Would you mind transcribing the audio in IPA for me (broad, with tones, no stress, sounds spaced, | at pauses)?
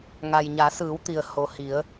ŋ a˩ j ɲ a˩˧ s ɯː˩˧ w t̪ i˩ ə̯ h o˩ h i˩˧ ə̯